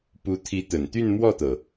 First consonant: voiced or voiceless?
voiceless